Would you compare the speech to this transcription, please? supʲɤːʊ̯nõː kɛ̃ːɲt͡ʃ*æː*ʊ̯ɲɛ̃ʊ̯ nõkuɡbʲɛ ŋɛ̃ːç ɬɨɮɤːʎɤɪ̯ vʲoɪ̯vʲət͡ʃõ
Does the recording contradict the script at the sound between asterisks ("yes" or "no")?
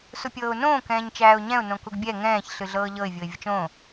no